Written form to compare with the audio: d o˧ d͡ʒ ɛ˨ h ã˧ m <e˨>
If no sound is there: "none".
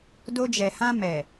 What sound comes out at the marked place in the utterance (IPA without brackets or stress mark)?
ɛ˨